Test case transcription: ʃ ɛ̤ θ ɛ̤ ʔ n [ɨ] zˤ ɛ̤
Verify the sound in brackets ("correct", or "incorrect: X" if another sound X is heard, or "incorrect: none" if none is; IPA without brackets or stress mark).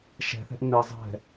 correct